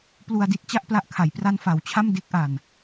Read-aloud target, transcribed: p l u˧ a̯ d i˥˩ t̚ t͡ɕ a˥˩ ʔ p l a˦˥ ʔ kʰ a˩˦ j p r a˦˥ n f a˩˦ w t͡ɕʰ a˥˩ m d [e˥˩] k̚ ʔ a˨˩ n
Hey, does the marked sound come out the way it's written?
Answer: no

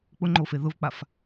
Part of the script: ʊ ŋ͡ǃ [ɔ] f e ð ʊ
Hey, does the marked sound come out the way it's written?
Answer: no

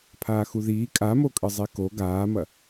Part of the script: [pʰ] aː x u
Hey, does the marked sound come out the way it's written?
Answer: yes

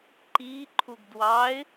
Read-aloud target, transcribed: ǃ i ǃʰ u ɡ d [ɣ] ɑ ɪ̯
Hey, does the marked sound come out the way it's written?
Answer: no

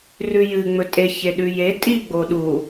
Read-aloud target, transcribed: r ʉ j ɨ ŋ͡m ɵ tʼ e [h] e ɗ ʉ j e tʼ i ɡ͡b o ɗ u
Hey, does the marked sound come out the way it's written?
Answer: no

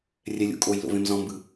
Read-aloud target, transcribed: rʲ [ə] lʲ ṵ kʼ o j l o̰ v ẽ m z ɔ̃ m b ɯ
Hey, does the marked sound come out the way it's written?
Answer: no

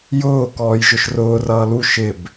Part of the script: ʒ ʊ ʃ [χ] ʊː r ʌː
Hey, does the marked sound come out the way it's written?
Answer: no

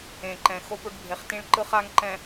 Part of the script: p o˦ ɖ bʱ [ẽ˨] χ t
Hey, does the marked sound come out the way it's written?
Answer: no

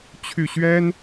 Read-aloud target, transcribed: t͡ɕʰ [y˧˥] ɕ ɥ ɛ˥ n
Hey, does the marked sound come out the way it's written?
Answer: no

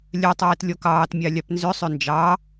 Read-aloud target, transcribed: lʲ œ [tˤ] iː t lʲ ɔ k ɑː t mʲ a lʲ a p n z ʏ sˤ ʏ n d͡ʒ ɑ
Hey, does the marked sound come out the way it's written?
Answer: yes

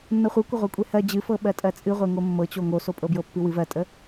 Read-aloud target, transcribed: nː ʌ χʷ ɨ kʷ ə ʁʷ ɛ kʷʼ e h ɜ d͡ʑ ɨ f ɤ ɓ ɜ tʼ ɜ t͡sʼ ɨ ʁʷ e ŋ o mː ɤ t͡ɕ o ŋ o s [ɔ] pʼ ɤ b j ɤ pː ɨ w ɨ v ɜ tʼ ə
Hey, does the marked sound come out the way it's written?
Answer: no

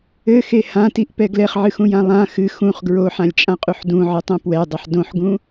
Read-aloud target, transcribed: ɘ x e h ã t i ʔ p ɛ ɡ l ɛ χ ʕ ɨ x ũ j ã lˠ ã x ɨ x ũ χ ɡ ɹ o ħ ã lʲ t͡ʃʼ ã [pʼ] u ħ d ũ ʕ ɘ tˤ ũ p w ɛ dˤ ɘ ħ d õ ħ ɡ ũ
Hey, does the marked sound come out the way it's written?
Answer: no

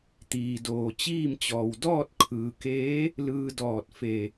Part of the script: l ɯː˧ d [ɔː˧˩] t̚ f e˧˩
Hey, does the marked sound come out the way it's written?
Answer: yes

